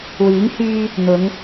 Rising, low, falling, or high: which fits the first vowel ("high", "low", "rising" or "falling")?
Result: rising